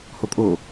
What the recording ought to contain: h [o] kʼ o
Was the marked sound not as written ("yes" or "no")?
no